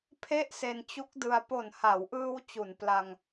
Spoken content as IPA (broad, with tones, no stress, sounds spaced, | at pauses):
pʰ e˥˩ ʔ s e˧ n t͡ɕ u˦˥ k̚ d ɯ˧ a̯ p o˨˩ n h a˩˦ w ʔ ɯː˧ w t͡ɕ u˩˦ n p l a˧ ŋ